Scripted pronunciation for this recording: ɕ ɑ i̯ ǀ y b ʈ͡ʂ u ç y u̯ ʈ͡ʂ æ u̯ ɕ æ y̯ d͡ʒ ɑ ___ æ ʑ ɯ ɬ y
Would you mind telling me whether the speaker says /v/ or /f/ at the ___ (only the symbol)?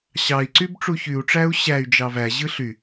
v